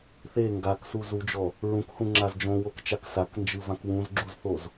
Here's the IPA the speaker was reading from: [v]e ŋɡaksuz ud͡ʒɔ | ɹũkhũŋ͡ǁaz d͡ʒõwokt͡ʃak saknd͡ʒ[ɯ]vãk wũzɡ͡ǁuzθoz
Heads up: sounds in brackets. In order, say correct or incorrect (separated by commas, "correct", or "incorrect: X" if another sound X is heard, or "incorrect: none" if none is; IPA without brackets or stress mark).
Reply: incorrect: θ, correct